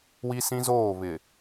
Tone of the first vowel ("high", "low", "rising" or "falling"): high